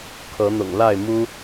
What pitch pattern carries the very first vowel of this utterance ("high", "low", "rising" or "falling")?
rising